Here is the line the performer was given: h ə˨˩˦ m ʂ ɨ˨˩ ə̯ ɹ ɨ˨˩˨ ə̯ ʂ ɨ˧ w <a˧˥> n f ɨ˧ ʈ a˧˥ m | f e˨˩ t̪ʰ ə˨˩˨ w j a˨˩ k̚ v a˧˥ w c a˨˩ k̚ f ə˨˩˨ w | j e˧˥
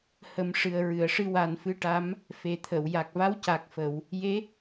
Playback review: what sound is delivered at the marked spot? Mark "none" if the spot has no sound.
a˨˩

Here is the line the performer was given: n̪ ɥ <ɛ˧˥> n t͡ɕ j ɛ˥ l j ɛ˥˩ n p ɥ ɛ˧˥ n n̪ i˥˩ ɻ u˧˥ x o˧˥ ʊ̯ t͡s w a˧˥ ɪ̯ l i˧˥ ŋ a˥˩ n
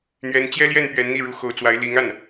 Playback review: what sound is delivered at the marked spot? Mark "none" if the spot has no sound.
ɛ˧˥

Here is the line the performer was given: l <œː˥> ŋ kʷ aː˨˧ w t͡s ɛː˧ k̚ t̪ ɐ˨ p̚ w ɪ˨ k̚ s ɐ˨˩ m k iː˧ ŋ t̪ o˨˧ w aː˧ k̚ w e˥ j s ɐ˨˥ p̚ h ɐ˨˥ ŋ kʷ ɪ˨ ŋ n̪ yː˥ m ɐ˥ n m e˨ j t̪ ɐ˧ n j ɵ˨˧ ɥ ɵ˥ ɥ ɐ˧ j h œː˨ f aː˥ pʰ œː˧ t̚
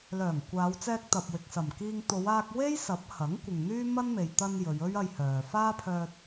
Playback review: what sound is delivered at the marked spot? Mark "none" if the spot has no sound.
œː˨˩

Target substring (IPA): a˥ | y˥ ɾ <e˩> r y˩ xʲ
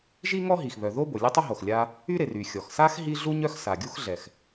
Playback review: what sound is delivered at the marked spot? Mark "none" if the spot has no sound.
e˩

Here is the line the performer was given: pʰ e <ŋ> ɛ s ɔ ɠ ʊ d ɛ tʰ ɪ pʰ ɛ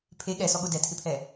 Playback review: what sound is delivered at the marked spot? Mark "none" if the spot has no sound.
ɠ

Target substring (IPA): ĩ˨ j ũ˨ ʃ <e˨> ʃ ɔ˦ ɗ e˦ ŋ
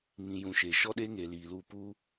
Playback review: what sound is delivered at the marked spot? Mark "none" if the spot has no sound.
e˨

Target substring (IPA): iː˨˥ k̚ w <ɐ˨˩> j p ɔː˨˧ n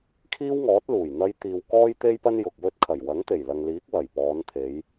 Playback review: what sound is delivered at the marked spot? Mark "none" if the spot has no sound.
ɐ˨˩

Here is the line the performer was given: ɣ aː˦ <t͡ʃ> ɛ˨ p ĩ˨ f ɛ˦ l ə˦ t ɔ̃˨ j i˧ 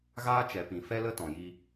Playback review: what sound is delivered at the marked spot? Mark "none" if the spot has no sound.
t͡ʃ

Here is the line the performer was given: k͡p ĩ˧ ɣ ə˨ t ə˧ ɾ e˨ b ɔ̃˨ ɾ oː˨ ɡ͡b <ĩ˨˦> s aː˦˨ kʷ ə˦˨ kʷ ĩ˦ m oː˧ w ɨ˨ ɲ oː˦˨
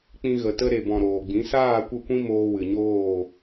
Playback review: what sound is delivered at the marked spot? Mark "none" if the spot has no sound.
ĩ˨˦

